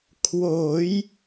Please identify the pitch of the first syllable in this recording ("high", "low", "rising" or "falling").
rising